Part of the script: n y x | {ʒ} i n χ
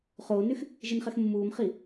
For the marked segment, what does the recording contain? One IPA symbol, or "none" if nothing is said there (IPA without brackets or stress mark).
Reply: ʒ